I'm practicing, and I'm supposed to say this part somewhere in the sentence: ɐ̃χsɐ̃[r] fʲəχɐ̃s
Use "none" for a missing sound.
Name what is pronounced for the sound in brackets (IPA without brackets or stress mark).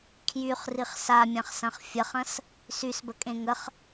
χ